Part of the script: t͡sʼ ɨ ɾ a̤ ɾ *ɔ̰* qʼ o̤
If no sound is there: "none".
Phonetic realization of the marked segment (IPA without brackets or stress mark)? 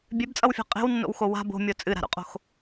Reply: o̰